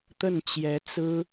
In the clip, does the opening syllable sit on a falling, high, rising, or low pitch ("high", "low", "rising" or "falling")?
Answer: falling